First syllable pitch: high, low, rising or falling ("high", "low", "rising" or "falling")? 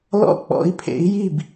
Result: falling